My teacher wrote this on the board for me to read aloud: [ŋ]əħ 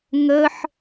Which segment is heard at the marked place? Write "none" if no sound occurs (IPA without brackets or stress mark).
ŋ